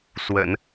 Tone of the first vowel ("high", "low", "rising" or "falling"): low